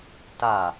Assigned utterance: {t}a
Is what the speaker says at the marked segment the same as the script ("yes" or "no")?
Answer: yes